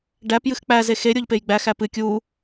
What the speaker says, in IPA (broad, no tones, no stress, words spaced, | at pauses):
ɖæp jɨxk͡pæ zexe ɾʲoʎpejɡ͡bæ xæpɨ kʲu